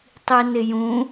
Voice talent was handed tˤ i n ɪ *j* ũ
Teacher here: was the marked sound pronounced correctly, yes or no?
yes